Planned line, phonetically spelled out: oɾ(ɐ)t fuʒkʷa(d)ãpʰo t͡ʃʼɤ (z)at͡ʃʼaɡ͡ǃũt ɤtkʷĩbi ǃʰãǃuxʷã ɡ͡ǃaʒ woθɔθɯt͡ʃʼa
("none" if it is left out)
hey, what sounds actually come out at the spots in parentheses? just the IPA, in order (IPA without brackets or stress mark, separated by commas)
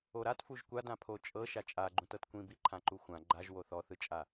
a, d, ʃ